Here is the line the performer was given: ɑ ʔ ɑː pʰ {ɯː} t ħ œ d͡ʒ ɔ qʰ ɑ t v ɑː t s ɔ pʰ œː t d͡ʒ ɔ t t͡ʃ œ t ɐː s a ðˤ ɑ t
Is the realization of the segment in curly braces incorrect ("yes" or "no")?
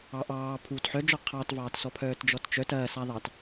yes